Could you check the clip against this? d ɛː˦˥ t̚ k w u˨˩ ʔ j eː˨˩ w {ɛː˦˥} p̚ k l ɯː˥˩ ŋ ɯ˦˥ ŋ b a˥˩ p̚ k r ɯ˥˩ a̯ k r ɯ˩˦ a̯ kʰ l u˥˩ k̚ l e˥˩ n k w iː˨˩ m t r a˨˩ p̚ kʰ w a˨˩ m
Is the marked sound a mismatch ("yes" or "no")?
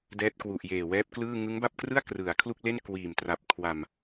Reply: no